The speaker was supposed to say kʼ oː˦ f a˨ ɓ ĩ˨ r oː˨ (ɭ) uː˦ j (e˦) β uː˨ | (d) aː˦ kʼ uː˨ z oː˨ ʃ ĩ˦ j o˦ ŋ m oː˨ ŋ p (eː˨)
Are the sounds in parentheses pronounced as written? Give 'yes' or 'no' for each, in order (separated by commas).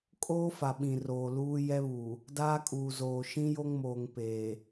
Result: no, no, yes, yes